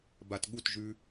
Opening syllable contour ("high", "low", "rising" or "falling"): low